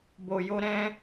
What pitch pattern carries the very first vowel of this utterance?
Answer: low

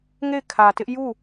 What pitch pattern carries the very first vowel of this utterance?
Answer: falling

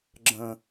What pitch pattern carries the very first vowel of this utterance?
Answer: low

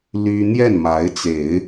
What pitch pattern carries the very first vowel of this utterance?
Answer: high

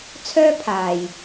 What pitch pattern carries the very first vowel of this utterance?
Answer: high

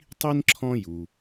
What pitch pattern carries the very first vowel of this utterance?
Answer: high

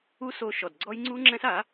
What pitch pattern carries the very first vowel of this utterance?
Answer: high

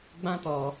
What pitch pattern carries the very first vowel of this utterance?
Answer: high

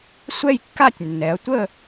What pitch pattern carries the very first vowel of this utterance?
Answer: falling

